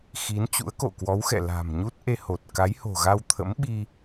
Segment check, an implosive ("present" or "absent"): present